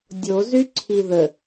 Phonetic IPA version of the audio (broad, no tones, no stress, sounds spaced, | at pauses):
dʲ o z y ǀʰ i ð ə